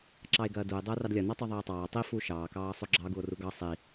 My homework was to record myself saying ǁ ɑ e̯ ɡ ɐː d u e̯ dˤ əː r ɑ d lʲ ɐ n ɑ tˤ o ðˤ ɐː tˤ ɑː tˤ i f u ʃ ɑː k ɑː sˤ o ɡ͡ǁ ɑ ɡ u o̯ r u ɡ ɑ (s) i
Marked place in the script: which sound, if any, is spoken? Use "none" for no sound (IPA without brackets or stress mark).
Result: sˤ